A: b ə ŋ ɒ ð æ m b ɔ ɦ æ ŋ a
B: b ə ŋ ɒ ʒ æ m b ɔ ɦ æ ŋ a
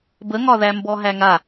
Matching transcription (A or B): A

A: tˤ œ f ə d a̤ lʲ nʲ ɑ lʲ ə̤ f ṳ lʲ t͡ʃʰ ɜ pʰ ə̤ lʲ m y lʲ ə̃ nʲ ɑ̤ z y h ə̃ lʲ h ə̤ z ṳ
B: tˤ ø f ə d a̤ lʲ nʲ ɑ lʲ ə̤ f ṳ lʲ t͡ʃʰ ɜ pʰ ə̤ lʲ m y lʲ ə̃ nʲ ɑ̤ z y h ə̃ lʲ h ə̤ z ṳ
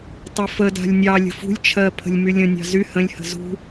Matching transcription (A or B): B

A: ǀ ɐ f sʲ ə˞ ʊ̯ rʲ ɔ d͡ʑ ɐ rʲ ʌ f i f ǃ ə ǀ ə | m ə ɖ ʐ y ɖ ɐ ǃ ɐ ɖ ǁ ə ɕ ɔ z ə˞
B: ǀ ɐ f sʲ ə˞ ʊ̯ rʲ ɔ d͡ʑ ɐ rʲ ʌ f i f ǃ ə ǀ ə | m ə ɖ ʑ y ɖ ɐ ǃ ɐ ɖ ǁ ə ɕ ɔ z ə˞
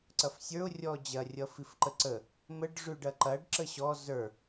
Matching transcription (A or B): A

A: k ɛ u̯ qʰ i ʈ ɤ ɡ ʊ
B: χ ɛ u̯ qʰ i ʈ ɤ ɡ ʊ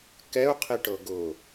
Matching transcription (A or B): A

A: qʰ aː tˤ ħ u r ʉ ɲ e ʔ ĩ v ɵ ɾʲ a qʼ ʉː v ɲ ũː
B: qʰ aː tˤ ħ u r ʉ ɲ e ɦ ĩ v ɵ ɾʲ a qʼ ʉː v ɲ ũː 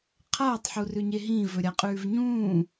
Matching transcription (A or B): B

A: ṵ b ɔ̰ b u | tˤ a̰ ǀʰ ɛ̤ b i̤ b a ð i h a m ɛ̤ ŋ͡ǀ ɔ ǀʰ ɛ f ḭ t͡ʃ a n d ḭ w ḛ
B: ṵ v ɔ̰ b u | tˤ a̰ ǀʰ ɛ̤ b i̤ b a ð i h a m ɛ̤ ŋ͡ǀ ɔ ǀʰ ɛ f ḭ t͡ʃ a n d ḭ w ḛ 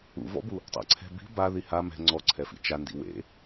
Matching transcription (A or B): B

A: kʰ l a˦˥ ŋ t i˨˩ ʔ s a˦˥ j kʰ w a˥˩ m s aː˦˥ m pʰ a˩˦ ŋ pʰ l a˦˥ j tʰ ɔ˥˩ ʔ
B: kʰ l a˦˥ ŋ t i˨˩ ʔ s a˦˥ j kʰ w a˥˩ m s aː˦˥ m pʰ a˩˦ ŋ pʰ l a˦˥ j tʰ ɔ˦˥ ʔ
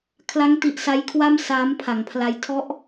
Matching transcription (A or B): B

